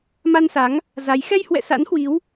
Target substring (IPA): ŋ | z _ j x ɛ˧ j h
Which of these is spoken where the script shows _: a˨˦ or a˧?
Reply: a˨˦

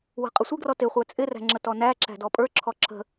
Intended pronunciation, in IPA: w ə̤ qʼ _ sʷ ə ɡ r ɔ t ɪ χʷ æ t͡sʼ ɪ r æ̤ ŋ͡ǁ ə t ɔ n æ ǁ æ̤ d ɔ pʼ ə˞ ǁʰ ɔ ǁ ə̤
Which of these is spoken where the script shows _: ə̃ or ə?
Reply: ə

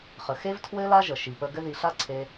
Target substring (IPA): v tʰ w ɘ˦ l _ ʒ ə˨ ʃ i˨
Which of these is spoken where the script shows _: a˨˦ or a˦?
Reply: a˦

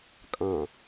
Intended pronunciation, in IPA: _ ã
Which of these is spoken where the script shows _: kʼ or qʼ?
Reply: kʼ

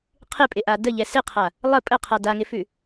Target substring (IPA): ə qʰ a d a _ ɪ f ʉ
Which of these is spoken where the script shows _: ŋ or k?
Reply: ŋ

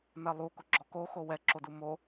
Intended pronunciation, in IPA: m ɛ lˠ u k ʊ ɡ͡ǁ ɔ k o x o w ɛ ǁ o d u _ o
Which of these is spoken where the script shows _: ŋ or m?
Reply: m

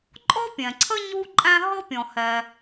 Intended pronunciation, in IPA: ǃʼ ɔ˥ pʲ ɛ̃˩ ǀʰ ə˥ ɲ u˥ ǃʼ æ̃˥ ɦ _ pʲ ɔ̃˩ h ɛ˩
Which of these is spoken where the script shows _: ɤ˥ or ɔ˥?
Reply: ɤ˥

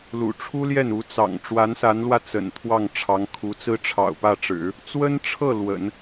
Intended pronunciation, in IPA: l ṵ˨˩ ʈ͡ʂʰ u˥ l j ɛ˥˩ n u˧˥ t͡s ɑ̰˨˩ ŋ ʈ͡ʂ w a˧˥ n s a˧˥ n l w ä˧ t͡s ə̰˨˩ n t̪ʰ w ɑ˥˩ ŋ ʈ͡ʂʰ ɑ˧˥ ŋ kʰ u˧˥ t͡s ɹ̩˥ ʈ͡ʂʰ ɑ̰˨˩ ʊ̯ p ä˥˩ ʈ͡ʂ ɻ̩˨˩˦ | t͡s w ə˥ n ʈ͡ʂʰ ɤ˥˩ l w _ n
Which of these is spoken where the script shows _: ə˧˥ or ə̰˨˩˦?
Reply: ə̰˨˩˦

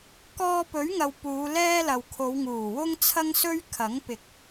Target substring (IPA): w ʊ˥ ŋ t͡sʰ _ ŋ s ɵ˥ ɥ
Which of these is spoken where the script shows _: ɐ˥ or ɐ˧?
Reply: ɐ˥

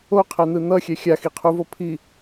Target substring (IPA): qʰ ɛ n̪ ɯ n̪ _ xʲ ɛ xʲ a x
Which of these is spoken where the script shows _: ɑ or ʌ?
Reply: ʌ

